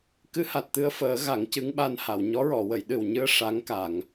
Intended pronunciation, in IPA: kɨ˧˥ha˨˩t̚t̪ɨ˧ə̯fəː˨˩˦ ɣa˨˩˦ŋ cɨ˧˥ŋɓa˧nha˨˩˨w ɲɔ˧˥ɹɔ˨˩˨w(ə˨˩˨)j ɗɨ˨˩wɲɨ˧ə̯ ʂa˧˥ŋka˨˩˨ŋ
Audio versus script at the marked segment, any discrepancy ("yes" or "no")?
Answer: no